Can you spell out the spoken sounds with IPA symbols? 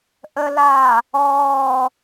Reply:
ʔəlaː | ɔː

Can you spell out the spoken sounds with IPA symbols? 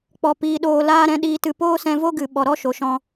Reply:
k͡pɔ˧piː˧ɗoː˧ laː˦ɾɛ̃˧ɗiː˧tɨ˧ poː˦sɛ̃˧vo˦ɡɨ˨ ɓɔ˨ɾɔ˦ʃo˨ʃɔ̃˧

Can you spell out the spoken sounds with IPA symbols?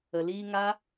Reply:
ə˨liː˧ŋa˦

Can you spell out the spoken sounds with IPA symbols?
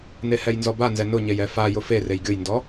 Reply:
nehɛjnzɔba nzɛnʊɲej ɛfa jʊferej ɡʲʊjndɔ

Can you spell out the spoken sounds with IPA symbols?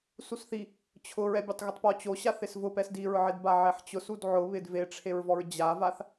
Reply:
susθi | t͡ɕʰʊ ɹɛbʲotˤɣɪtˤpɔ t͡ɕoɕaθ ɪsvʊpɛs diɹʕɪdba ʕɛħt͡ɕʊsud ʕʊβɪd veʈ͡ʂʰeɹvɔɹ d͡ʑavaθ

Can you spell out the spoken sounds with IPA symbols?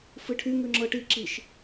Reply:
fɨʈʰy ŋʉŋ͡ǁɤʈi ǁiʃ

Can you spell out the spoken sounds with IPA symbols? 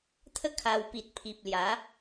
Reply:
t̪ʰə˦ kʰa˧wpi˨t̚ pʰi˨p̚lja˨˦

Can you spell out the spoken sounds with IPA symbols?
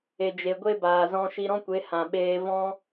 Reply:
e˨d͡ʒe˨ɡʷe˦baː˨ zɔ̃˧ʃi˧ɾɔ̃˦kʷe˨˦ hã˨ɓeː˧ vɔ̃˦

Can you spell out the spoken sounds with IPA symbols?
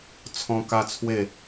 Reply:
t͡sʰɔ̃˦ka˦t͡sʰwe˥˧

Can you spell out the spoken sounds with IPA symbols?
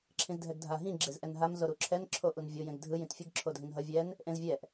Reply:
ǁʰĩzdʱɛɡdʱa ɦĩ ɡ͡ǁezʔɛnɦam zoɾuǁʰɛn ǁʰoʔunvʲo jẽɡdʱɯ jĩtfʲɯɡ ǁʰodʱĩnɦʌ vʲɛn | ʔẽzvʲɛʔ

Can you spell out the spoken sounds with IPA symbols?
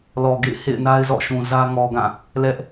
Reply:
lɔ˨ɡḛ˦˨ɪ̯hḛ˦˨ɪ̯na˦ɪ̯ zɔ̰˦˨ʃũ˨zä˦ ŋɔ˨ɡã˦˨ | lɛ˦ʔ

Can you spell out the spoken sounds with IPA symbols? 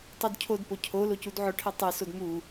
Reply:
tˤodcʰodpo cʰo locudʕʊʈʰe tˤesod mu

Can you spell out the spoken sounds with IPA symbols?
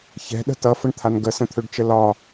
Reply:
çɛ̤ɗə̤ tʌfəɳt̪ʰan ɡəsə̃t̪ʰøɖt͡ʃə lɒ

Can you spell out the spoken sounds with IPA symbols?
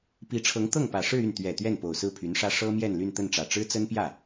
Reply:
pi˧˥ʈ͡ʂʰɤ˧˥ŋ t̪ɤ˥˩ŋpä˨˩ʂɻ̩˥˧y˥˩n t̪ɥɛ˨˩ t̪ɥɛ˥˩npo˨˩ʊ̯ sɹ̩˥˩pʰy˧˥nʂä˥ ʂɤ˥mjɛ˥˧n ly˥˧nt̪ə˥˩nʈ͡ʂä˨˩ ʈ͡ʂɻ̩˥t͡sə˥npjä˥˩

